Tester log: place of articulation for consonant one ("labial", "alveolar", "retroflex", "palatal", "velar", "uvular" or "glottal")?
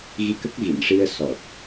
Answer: velar